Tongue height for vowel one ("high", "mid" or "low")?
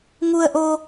high